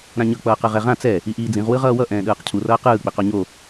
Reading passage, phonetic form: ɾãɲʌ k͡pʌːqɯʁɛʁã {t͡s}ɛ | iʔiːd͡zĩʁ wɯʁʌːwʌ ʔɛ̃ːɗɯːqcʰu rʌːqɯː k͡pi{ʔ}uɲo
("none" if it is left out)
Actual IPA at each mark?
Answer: t͡s, q

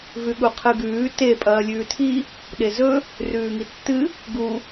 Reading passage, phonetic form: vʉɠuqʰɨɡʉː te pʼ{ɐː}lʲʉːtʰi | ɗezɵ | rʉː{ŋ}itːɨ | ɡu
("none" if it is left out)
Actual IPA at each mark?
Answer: ɐː, ŋ

